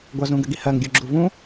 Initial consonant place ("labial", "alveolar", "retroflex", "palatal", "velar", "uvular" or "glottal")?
velar